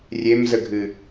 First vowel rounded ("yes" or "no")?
no